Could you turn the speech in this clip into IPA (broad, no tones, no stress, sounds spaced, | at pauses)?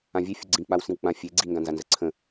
ã vʲ e fʲ ʊ ɡ͡ǀ ĩ k͡p a w s ĩ w k͡p ã fʲ e ɡ͡ǀ i ŋ ɡ ã n z a n z ə ǀʰ ə̃